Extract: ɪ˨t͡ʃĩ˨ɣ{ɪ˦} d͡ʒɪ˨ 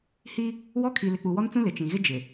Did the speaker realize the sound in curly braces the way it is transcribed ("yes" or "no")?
yes